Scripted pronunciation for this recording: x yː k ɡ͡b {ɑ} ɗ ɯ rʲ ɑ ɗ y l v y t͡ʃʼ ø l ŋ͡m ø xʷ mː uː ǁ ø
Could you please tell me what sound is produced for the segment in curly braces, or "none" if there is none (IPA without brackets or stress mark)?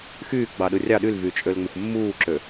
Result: ɑ